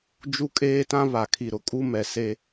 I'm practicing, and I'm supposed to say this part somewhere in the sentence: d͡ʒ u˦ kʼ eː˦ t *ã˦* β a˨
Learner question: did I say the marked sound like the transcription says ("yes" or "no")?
yes